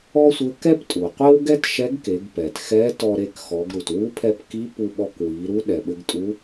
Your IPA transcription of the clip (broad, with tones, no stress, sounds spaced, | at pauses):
ɔ˥ sʷ ɘ˧˥ k ɛ˥ p tʼ u˩ qʷ e˥ w ɡ ɛ˥ t ʃ ɛ˧˥ ɡ k e˩˧ ɡ p ɛ˩ t x ɛ˧˥ t ɔ˧ ɾ e˧ k x ɔ˩˧ ɡ ɾ u˩ t w u˧˥ pʰ ɛ˧ p k i˧˥ p u˧ ɓ ɔ˧ k w i˩˧ ɾ u˧˥ ɗ ɛ˩ ɓ ɘ˧ ɡ tʼ u˧˥